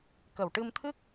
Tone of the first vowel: low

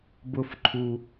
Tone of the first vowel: high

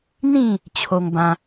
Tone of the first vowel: falling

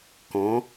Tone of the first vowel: rising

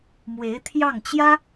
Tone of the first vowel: rising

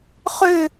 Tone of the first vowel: falling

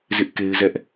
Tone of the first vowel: high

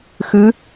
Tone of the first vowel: rising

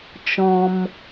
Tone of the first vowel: high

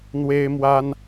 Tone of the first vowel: high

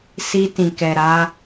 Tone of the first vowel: high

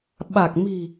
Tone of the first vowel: low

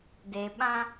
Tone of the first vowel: low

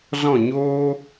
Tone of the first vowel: falling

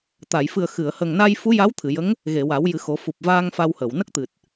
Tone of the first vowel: low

